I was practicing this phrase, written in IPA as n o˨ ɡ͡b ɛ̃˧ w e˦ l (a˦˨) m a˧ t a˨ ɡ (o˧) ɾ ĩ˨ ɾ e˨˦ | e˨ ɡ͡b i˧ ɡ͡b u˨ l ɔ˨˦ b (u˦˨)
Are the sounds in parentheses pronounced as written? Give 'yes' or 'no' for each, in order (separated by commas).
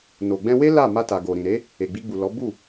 yes, no, yes